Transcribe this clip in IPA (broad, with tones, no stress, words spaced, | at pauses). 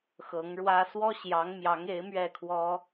xɤ˧˥ŋɻwä˥ swɔ˥ɕjɑ˧˥ŋmjɑ˧˥ŋ e˧˥ɪ̯ mɥɛ˥˩kʰwɔ˥